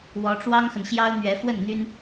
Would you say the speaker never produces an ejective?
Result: yes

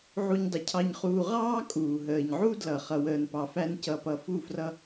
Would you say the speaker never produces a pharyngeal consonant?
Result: no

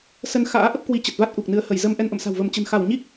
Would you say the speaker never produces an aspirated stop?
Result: yes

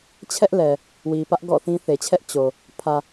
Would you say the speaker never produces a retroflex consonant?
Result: yes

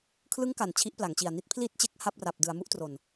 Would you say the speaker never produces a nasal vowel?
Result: yes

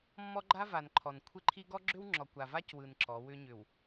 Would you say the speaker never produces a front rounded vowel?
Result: no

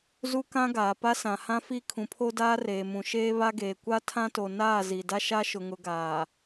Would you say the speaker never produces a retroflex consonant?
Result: yes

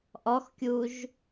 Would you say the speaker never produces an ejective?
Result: yes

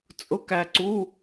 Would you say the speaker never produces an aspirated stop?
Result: yes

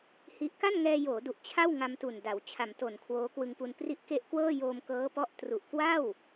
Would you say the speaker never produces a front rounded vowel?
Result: yes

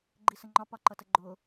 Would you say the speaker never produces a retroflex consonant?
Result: yes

